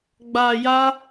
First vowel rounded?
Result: no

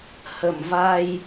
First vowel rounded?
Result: no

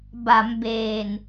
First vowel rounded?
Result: no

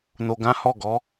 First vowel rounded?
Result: yes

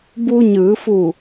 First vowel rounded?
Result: yes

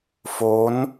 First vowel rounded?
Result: yes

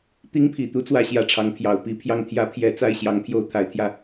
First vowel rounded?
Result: no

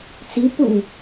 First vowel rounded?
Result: no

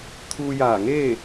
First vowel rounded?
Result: yes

